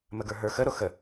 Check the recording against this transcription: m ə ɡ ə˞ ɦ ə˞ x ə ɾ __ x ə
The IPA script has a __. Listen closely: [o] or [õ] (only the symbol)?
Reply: o